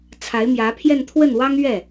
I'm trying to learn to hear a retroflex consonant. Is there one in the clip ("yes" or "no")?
no